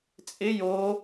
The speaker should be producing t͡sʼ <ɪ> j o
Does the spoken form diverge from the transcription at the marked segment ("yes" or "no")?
no